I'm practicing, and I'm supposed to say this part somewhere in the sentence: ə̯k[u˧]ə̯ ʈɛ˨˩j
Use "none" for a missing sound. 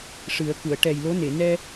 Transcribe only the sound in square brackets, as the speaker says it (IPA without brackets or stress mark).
u˨˩˨